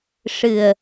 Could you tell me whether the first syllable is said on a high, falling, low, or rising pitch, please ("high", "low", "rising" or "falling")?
low